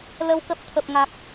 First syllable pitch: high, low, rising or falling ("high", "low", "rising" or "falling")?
rising